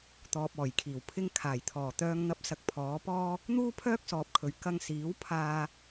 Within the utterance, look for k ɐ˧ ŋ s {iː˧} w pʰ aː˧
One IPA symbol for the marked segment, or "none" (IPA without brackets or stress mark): iː˨˥